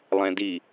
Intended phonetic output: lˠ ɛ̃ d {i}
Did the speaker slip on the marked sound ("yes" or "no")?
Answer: no